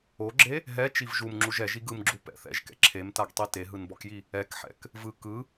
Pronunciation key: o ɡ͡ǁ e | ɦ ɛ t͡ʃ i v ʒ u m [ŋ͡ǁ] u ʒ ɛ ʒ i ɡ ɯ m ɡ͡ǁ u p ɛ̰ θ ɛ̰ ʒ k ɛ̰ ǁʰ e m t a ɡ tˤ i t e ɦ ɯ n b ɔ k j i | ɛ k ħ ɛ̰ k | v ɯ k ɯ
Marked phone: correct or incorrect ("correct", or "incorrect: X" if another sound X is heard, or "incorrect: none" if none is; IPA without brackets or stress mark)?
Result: correct